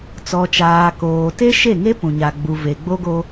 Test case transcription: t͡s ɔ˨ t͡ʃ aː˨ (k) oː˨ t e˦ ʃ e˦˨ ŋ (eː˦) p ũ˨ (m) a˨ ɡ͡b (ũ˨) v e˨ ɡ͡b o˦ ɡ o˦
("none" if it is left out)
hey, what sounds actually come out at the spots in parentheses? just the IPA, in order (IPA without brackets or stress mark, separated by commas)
k, e˦, ɲ, u˨